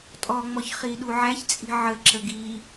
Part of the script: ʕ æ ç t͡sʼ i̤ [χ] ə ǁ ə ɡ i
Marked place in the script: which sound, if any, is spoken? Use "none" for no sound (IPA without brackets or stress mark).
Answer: ʕ